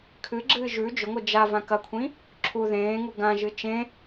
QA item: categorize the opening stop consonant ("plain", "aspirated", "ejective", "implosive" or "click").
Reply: aspirated